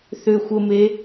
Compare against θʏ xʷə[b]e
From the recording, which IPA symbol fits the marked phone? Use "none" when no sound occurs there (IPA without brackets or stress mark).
m